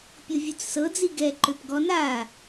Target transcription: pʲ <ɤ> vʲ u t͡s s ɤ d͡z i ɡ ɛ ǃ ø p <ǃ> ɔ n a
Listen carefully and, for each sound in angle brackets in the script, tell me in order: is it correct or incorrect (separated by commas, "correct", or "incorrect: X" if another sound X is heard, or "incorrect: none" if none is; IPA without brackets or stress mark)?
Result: correct, incorrect: ɡ